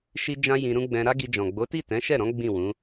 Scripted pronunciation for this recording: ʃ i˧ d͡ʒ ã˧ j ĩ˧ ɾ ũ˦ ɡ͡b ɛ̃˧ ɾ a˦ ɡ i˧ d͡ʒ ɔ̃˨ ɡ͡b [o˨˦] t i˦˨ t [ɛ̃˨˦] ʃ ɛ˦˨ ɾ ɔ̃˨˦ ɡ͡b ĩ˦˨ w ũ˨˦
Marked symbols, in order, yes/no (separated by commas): yes, yes